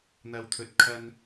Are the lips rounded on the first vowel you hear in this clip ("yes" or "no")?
no